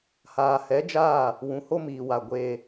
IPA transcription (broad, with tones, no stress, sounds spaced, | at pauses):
h aː˨ h ɛ˨˦ d͡ʒ aː˦˨ | w ũ˨ h o˦ m iː˨ w a˨ ɡʷ eː˦